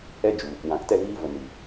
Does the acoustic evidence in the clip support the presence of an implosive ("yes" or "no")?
no